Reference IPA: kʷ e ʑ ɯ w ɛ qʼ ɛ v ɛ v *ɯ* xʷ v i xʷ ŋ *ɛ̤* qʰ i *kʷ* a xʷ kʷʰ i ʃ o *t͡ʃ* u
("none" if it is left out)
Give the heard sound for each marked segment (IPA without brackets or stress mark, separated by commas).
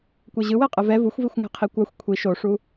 u, ɛ̤, kʷ, ʂ